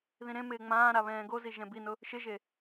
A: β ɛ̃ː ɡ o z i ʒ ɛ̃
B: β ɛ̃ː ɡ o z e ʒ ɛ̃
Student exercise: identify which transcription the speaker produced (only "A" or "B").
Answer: A